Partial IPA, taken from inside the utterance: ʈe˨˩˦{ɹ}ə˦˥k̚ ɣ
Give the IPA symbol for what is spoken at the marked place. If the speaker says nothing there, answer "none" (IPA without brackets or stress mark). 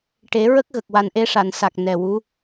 ɹ